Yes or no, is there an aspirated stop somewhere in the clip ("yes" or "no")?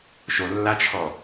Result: yes